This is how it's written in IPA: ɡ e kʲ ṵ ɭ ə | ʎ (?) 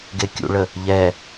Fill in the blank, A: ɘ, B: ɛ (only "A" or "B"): B